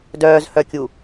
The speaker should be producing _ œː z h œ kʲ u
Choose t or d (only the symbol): d